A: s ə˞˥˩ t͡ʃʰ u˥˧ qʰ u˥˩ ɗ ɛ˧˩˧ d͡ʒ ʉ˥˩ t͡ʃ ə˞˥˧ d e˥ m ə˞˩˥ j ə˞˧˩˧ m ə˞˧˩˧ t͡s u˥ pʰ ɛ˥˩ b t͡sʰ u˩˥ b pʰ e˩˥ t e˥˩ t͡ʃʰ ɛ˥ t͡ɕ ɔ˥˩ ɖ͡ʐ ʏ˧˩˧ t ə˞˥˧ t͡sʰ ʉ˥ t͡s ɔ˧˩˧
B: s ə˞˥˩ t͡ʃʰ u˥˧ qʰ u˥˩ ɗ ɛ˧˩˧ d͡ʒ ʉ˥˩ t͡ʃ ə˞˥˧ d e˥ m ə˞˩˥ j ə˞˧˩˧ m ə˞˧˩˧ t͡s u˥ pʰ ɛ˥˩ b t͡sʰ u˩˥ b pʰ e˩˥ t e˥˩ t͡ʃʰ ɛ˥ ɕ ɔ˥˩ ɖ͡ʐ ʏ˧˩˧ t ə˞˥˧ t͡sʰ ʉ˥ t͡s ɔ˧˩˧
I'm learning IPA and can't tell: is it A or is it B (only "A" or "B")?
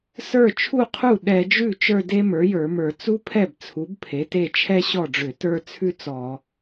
B